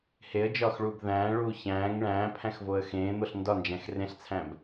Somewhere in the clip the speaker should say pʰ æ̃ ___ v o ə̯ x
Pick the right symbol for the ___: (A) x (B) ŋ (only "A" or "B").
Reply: A